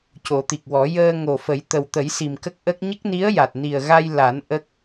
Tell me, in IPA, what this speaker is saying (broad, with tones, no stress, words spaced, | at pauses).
co˨˩˦t̪i˨˩k̚wɔ˨˩˦ jəː˧ ŋo˨˩fə˨˩˦j t̪ə˨˩wt̪ə˨˩˦j si˨˩mkə˦˥k̚ʔə˦˥k̚ ɲə˦˥k̚ni˧˥ə̯ja˨˩t̚ ni˨˩ə̯ɣa˧j la˨˩˦n ʔə˦˥k̚